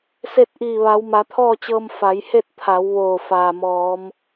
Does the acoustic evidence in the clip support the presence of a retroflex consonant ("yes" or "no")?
no